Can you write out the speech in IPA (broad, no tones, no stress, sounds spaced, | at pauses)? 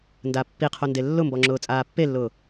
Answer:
n d a pː i qʰ o n d e lː ʊ m b ɔ ŋ͡ǁ ʊː t͡sʼ aː pː e lː ʊː